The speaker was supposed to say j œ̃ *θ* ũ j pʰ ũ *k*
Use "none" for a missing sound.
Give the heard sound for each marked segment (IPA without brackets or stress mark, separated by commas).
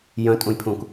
tʼ, k